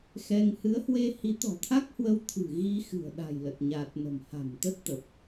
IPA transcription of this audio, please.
x ɛ˧ ŋ h ɨ˨˦ ə̯ h w e˧ h i˨˦ t̪ ɔ̤˨˩ t̪ʰ a˦˥ k̚ h w ə˧ w t̪ʰ ɨ̤˨˩ ɣ i˧ x ɨ̤˨˩ ə̯ ɗ a̤˨˩ j l ə˨˩ t̚ ɲ aː˨˩ t̚ n ə̤˨˩ m h a̤˨˩ m t̪ ə˦˥ t̚ t̪ ə˨˩ p̚

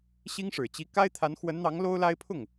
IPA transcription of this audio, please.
ɕ i˥ ŋ ʂ ɻ̩˨˩ t͡ɕ i˧˥ k a˥ ɪ̯ t̪ʰ a˧˥ n x w ə˧˥ n n̪ ɑ˧˥ ŋ l o˥ ʊ̯ l a˥ ɪ̯ pʰ ʊ˥˩ ŋ

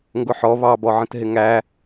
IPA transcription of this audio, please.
ŋ ɡ ʊ ħ ɔ β ɑ b ɔ ʕ ə̃ t ɦ ɪ ŋ æ

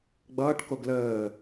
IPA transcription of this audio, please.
ɡ͡b ʌː ʈ k o ɡ l əː

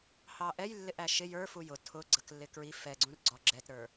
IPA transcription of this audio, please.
h ɑ ʔ ɛ j lː ɪ ʔ æ ʃ ɪ j ə˞ f u j ʊ tʰ ʊ ɡ͡ǀ ə k lː ɪ k ɹ i f ɛ ɡ͡ǀ ũ r ɡ͡ǀ ɔ ɡ͡ǁ ɛ t ɾ ə˞

